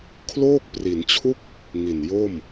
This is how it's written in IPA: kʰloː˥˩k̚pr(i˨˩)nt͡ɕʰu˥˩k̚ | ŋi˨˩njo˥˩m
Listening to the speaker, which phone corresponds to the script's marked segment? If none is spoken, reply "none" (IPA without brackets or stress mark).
i˩˦